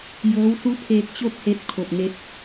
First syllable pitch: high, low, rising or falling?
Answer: rising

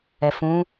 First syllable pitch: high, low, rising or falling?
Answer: low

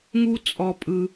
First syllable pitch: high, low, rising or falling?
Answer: high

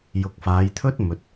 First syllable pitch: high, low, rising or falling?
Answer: low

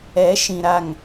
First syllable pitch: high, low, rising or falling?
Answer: rising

